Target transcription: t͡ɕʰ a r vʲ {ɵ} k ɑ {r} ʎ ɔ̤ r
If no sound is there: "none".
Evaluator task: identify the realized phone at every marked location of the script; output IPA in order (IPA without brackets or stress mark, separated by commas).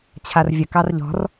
ə, r